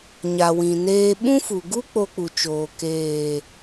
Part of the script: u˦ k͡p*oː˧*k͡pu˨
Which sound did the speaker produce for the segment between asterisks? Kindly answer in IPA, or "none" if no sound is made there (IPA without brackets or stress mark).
o˧